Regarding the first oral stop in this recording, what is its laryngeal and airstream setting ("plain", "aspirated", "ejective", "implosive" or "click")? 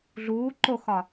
click